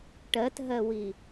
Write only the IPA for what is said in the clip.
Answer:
ʈ ɜ t ɦ ɜ w i

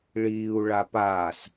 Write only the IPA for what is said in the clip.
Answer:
ɭ iː u̯ ɭ a p aː s

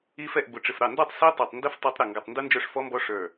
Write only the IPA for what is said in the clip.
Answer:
i˦˥ f ɛ˥˩ ʔ b ʊ˧˩ ʈ͡ʂ ɪ˧˩ f ɾ ɑ˥˩ n d ɔ˥˩ tˤ s i˦˥ tˤ æ˧˩ tˤ n d ə˦˥ f tˤ æ˦˥ tˤ ɾ ə˧˩ ŋ ɡ ʌ˧˩ tˤ n d u˦˥ n d͡ʒ ə˞˥˩ ʂ f ɔ˦˥ m b ɔ˦˥ ʂ ə˞˧˩

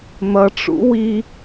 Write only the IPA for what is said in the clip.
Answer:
n̪ ʌ ʈ͡ʂ ṵ w i

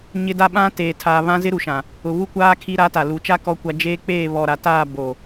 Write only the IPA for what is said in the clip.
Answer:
ɲ ɪ˦ d a˦ ɓ ã˦ t eː˨ tʰ aː˨ β ã˦ z ɪ˦ ɾ u˨ ʃ ã˨ | ʊ˨ β u˦ kʷ aː˦ kʰ i˦ ɾ aː˦ t a˨ l u˨˦ t͡ʃ a˦ k ɔ˦ kʷ a˦ d͡ʒ eː˦ k͡p eː˦˨ β ɔ˨ ɾ a˨ t aː˦˨ b o˨

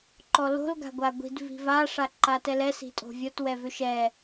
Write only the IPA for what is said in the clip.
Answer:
ǃ ɔ l o̤ l ɡ a̤ ɡʷ a ɡʷ i̤ d v i̤ v a ʂ a ǃ a t ɛ l ɛ s i̤ tʼ o̤ vʲ ɔ t w ɛ v ʏ ʃ ɛ

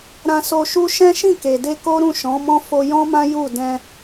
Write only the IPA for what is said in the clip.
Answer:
ɾ ã˧ s o˧ ʃ u˦ ʃ ɛ̃˦ ʃ ĩ˦˨ k e˨ d e˧ k o˦ ɾ ũ˦˨ ʃ ɔ̃˨˦ m ɔ̃˦ f o˧ j ɔ̃˦ m ã˦ j u˦˨ d ɛ̃˧

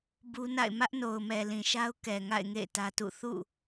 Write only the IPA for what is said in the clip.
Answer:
b u˦ n a̰˦˨ ɪ̯ m ä˦ ʔ n o˨ ʊ̯ m ɛ˨ l ĩ˨ ʃ a˦ ʊ̯ k ɛ˨ ŋ a̰˦˨ ɪ̯ ŋ ḛ˦˨ ɪ̯ t ä˦ t ṵ˦˨ θ ṵ˦˨

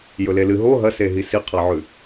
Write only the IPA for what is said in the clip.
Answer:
j ɵ l e l ɨ ɦ o ɦ ɐ s e ɦ i s i qʰ a ʕ ʉ

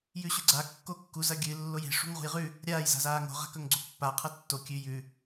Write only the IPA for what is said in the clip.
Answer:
j ʉ ɕ ʉ ɡ͡ǀ a kː o kː u z ɐ ɡʲ ɨ lː o j e̤ ʂ ṳ ŋ ʁ ṳ j ʁ ʉ | ɾʲ aː j z a̤ z aː ŋ o̤ ʁ a̤ k ɵ ŋ ɡ͡ǀ u pː a qʰ ɐ tː o kʲ ʉ j ʉ

